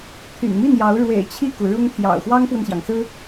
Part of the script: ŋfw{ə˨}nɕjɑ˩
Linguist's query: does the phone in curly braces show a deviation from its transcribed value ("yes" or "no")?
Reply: no